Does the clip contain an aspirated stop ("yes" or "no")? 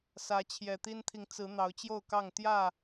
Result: yes